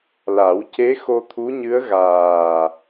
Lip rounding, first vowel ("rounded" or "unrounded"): unrounded